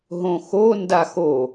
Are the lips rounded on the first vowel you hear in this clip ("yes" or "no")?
yes